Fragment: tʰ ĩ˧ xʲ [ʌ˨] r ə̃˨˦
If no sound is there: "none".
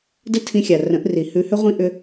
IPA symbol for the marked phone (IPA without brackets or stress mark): a˨